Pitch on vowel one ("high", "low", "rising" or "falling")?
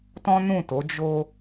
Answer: high